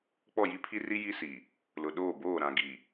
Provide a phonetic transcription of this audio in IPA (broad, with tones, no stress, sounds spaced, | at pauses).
k͡p ɔ˦˨ j i˦ pʰ i˦ r i˦ j i˦ s i˨ | l ʊ˨ ɗ oː˦˨ b oː˦˨ ɾ ã˨ ɡ i˨